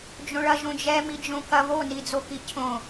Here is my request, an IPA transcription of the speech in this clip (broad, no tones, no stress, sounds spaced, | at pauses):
d͡ʒ õ ɭ ɐ ʒ õ d͡ʒ ɛ m i d͡ʒ õ k ɐ β o n i d͡z o k i cʰ õ